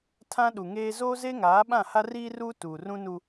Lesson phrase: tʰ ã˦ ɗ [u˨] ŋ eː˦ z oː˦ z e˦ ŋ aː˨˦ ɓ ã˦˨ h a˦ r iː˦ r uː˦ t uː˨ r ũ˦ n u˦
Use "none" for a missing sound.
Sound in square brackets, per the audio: u˨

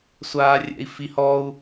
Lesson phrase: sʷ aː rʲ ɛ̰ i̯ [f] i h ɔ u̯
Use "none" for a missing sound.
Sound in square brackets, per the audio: f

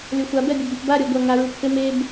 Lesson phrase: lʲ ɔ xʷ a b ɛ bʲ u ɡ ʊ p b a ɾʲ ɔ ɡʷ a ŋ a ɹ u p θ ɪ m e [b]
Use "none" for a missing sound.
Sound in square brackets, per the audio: b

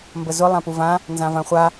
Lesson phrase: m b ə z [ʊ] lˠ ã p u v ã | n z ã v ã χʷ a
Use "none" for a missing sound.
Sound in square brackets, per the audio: ʊ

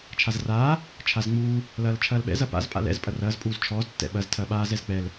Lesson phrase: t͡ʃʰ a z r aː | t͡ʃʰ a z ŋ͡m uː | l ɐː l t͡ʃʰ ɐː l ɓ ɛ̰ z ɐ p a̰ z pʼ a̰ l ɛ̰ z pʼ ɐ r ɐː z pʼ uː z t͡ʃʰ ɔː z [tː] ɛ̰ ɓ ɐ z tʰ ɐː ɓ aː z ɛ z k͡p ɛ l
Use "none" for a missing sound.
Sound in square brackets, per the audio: tː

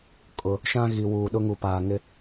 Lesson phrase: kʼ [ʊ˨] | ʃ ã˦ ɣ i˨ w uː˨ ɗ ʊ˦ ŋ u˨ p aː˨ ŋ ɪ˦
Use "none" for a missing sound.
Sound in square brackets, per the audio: ʊ˨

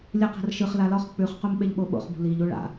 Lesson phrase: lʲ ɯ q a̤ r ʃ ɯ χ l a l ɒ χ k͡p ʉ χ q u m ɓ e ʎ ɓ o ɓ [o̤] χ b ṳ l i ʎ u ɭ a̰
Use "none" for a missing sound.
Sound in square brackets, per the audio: o̰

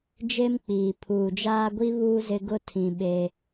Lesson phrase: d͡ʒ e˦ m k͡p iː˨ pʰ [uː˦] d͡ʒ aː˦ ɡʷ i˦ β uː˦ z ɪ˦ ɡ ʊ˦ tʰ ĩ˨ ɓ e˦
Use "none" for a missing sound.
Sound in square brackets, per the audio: uː˨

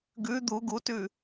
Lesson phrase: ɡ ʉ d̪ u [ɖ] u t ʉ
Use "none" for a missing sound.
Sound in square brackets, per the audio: ɡ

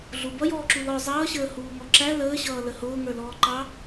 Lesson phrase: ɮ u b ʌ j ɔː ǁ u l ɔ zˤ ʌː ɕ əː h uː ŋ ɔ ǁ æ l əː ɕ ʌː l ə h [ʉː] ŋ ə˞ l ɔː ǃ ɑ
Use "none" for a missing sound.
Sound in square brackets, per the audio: ʊː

